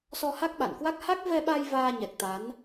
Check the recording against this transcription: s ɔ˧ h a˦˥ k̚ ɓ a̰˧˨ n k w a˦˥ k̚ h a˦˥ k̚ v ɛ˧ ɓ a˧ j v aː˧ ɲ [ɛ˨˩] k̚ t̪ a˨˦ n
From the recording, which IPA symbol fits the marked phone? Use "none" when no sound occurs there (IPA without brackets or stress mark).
ɛ˨˩